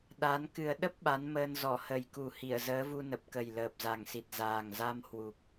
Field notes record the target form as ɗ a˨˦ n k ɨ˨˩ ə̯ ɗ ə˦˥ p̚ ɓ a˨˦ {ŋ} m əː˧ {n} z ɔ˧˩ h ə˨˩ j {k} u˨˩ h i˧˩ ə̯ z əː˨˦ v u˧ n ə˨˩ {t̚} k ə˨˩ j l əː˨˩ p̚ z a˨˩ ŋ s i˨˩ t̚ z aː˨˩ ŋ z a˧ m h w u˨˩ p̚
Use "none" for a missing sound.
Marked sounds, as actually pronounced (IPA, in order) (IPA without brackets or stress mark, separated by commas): n, n, k, p̚